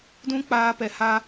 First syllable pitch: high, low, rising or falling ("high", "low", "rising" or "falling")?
high